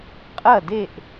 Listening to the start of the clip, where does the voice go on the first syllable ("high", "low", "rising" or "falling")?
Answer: falling